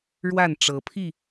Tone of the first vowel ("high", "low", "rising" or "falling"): falling